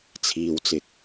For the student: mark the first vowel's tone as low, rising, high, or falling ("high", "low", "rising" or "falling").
low